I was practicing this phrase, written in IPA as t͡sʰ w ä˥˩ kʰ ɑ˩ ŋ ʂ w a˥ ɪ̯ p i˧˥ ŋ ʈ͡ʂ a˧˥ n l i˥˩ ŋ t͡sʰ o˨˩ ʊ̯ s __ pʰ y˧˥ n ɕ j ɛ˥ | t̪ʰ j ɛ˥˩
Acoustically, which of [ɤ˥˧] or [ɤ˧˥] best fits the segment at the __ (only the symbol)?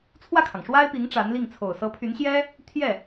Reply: ɤ˧˥